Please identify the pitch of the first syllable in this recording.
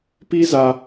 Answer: high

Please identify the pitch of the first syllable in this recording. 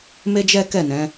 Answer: high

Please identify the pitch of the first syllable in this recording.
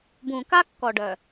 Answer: low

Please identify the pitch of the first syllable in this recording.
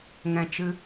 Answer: low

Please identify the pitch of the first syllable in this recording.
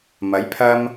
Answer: rising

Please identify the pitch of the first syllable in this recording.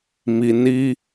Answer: low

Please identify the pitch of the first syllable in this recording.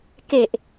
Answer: low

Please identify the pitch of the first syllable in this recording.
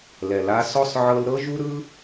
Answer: low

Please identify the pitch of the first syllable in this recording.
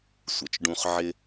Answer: low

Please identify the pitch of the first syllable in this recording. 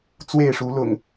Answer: falling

